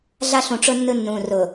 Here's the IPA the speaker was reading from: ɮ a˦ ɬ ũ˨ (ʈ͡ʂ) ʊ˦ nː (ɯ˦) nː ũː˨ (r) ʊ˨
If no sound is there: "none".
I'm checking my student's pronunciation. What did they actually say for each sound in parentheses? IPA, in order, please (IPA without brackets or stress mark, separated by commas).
ʈ͡ʂ, ɯ˦, r